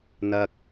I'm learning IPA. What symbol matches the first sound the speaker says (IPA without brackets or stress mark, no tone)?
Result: n̪